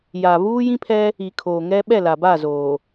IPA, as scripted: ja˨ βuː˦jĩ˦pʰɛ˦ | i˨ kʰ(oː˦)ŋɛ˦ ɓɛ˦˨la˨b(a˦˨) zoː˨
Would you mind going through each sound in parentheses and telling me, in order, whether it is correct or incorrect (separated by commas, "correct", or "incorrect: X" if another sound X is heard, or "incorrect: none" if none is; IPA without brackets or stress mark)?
incorrect: oː˨, correct